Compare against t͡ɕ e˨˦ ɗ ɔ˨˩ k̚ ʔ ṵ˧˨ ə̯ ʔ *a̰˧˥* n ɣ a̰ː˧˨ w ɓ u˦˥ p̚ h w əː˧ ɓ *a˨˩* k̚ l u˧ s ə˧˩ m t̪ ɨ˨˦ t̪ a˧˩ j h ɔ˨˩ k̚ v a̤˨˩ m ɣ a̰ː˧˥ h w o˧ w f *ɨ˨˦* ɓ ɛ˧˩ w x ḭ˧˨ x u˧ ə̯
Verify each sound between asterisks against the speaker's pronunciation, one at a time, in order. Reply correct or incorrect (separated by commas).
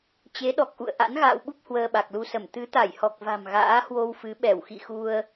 correct, correct, correct